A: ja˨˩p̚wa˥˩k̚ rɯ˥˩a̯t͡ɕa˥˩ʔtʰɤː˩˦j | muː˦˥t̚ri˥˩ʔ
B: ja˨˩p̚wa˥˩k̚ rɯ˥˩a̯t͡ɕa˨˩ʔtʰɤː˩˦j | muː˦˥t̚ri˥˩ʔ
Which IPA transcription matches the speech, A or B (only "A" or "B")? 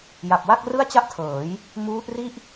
A